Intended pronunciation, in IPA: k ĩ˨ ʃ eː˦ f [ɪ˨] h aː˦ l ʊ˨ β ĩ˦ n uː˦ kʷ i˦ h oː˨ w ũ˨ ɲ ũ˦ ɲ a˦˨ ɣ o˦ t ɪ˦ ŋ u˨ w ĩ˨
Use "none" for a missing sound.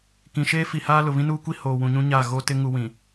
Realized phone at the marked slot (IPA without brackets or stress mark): i˨